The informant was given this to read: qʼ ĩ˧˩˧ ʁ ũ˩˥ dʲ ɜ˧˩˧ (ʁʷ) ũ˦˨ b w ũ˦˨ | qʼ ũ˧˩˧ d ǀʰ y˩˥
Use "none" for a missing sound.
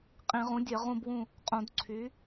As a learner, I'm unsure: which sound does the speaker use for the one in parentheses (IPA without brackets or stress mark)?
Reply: ʁ